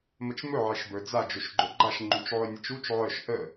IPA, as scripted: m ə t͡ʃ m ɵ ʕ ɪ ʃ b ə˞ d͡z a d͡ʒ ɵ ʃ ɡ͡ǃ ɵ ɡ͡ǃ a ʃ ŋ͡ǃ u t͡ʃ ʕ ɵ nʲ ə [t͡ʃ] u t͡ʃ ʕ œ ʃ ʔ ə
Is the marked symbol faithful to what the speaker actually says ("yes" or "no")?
yes